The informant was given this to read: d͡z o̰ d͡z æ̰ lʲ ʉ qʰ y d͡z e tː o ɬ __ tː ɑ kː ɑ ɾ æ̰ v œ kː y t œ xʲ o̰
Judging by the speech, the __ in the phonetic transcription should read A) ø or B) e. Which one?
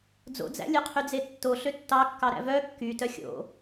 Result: A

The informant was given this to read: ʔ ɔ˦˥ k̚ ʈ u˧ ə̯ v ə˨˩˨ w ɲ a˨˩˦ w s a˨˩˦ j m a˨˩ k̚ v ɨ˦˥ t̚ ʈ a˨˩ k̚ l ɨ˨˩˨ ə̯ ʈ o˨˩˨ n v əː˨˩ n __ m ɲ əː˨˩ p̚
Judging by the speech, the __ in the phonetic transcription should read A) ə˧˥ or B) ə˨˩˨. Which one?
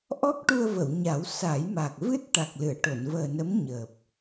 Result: A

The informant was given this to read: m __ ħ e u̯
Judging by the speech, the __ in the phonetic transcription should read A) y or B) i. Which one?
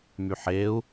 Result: A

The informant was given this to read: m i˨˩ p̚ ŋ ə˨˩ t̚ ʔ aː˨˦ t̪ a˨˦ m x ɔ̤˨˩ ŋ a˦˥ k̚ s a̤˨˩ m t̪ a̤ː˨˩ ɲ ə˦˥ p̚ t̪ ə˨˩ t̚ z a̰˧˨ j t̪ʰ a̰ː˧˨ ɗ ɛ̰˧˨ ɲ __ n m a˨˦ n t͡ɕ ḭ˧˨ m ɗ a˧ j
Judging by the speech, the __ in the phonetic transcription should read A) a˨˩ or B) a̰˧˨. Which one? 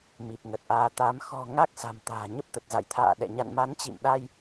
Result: B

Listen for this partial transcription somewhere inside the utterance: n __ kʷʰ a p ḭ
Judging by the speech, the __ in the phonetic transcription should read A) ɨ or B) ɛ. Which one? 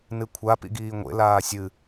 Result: A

